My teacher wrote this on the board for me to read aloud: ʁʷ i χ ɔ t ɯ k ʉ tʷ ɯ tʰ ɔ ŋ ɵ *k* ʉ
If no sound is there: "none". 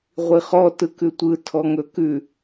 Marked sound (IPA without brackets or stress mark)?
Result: k